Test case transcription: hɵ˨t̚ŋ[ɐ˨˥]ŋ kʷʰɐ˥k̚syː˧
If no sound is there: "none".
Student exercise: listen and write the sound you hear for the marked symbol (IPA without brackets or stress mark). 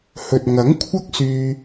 ɐ˨˥